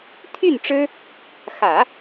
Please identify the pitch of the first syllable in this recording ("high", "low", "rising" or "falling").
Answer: falling